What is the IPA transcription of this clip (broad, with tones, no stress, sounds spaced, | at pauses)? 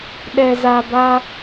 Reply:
ɗ ɛ˨ z a˨ b a˦